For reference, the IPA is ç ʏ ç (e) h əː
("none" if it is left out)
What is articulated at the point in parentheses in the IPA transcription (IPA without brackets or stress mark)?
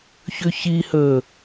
i